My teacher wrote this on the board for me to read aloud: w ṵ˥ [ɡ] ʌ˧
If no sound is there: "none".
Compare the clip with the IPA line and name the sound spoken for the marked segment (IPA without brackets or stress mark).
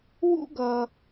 ɡ